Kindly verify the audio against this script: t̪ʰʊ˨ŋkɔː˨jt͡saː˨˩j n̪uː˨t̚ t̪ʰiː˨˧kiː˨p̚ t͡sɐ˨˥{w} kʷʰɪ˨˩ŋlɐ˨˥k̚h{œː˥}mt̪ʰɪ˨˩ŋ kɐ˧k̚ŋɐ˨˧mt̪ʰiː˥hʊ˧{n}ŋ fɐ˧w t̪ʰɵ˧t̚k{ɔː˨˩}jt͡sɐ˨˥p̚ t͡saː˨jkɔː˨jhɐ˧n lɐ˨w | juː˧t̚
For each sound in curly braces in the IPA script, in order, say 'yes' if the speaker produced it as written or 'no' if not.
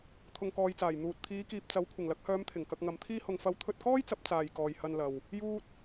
yes, no, no, no

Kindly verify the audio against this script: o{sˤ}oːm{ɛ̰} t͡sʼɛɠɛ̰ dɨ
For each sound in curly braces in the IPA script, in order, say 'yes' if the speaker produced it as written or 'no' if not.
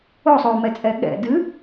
yes, no

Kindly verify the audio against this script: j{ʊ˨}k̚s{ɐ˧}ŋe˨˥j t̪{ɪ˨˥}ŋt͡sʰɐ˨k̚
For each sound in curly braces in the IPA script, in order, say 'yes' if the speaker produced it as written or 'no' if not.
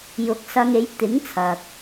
no, yes, yes

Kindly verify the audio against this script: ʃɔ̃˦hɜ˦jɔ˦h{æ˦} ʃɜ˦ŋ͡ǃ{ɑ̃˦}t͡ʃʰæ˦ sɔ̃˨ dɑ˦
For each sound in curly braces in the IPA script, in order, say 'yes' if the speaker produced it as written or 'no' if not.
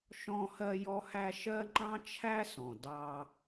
yes, yes

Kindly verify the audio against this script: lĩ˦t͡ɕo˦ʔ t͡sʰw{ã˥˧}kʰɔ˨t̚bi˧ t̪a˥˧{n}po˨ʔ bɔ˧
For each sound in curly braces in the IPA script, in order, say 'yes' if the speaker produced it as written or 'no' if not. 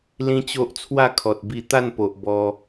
no, yes

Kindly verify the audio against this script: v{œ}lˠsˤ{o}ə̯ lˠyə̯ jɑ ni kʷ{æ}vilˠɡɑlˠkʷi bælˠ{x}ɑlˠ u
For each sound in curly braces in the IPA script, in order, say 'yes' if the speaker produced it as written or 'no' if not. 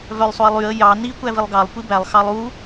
yes, yes, yes, yes

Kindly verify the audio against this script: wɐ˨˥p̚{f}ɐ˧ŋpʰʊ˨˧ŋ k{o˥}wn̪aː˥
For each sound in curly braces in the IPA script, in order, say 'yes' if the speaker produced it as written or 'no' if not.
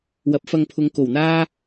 yes, no

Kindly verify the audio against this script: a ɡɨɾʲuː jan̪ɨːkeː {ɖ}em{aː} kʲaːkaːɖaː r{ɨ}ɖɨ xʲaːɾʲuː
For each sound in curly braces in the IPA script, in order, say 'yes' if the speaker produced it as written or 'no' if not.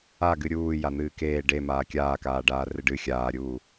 yes, yes, yes

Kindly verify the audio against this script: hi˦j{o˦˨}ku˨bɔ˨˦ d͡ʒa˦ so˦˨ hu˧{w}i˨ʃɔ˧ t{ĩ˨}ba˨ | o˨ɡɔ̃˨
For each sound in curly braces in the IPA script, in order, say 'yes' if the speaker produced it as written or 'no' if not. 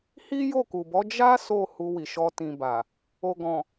yes, yes, yes

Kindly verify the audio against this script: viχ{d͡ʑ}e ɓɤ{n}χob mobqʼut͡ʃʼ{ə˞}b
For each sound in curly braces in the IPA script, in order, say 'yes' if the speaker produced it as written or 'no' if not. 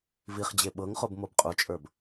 yes, no, yes

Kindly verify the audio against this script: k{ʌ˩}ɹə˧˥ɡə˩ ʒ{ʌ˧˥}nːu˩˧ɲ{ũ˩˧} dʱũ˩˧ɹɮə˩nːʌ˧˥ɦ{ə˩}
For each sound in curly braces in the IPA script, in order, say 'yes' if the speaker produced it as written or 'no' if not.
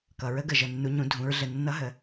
yes, no, yes, yes

